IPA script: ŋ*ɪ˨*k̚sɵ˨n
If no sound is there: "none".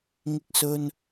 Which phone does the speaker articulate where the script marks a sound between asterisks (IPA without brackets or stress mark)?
ɪ˨